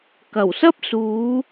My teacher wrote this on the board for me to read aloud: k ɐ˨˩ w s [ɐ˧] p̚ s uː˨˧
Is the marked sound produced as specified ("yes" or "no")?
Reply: no